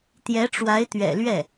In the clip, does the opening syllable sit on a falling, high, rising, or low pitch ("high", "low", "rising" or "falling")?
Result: rising